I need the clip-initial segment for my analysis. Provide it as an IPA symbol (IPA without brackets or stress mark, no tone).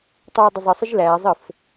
tˤ